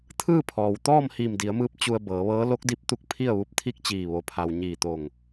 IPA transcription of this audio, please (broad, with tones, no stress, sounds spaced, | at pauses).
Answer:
t̪ʰ ɯː˥˨ pʰ ɔː˩ w t̪ ɔː˥˨ m h iː˧˩ m d i˩˧ ə̯ m ɯː˧ p̚ t͡ɕ u˧ ə̯ b ɤː˩˧ ʋ ɤː˧˥ l o˧˥ k̚ d i˧˥ p̚ t̪ u˧˥ k̚ pʰ i˥˨ ə̯ ʋ u˧ p̚ t̪ʰ i˥˨ k̚ t͡ɕ iː˧˩ ʋ o˩ pʰ a˩ w ɲ iː˧˩ t̪ o˧˩ ŋ